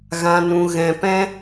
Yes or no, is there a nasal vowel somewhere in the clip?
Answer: yes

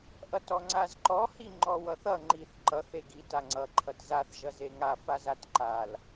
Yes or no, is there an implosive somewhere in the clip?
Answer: no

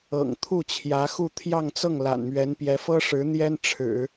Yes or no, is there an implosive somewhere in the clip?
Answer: no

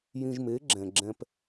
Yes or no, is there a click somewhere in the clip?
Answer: yes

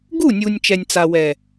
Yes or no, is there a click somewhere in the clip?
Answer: no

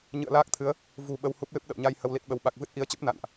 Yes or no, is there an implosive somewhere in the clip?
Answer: yes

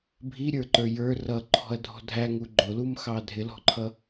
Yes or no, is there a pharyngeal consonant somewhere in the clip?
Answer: no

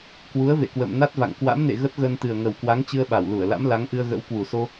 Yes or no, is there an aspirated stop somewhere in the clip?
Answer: no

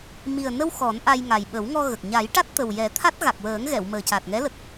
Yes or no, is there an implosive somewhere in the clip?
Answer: yes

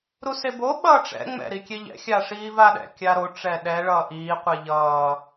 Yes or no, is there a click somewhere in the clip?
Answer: no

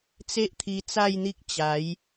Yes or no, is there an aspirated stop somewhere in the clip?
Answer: yes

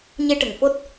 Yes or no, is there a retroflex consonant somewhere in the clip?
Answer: yes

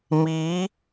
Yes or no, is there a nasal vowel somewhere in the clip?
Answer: no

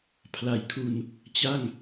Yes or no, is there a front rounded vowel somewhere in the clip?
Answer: no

